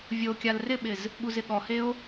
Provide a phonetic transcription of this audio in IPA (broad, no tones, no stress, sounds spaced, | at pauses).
vʲ o kʲ a l r ɪ ɓ ɪ z | ɠ u z ɪ ɠ ɔ h e o̯